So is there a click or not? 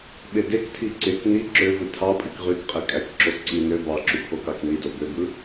yes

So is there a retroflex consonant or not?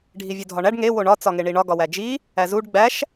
yes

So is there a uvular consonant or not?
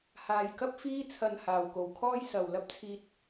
no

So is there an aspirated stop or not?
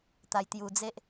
no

